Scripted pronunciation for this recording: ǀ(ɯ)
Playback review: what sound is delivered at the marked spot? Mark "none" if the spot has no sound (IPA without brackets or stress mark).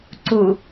u